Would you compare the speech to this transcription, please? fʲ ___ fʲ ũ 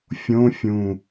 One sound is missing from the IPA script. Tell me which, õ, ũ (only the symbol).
õ